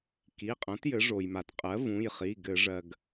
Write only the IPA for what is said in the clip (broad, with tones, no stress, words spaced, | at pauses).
ki˩˧˩qʼɐ̃˩˥t jɘ˩˥ʐo˩jma˩t qʼɜ˩˥vũ˩˧˩jχi˩˧˩ ɡɘ˧˩˧ ʐɜ˩ɡ